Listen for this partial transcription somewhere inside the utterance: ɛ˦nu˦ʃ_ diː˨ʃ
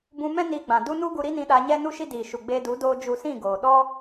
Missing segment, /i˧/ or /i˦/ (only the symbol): i˦